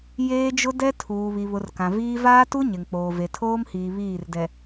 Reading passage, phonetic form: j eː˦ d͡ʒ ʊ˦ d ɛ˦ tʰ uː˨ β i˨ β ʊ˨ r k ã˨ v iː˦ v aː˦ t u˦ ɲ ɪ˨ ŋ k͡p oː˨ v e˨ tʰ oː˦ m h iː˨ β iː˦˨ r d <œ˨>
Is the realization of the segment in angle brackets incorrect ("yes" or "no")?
yes